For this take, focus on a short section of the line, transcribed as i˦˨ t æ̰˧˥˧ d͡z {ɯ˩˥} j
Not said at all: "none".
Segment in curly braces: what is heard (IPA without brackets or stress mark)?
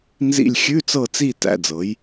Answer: ɤ˩˥